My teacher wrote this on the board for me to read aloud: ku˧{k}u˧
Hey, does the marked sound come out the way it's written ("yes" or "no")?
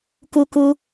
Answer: yes